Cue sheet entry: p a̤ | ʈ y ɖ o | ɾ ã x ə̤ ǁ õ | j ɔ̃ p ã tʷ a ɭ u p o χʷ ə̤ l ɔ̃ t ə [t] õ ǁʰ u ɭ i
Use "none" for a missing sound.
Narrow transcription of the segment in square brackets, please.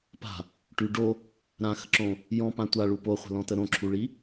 ɾ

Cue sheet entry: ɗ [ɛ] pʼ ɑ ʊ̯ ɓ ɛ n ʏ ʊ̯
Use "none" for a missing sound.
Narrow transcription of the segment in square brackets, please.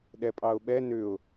ɛ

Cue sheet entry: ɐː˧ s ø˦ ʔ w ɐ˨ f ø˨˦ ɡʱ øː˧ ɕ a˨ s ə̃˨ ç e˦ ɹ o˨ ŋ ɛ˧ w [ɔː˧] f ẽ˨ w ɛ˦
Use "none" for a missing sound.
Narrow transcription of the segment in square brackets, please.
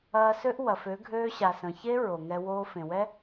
oː˧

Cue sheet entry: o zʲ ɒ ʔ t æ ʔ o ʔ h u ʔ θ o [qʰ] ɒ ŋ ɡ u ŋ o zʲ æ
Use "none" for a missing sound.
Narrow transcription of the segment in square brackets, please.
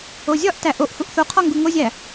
qʰ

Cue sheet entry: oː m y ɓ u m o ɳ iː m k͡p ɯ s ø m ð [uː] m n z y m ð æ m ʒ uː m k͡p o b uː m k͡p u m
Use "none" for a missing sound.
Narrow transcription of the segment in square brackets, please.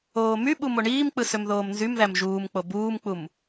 oː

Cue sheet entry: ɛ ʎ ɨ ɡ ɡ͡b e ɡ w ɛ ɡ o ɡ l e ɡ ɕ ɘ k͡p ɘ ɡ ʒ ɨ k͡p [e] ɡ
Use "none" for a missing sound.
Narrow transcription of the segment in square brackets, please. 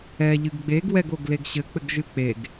e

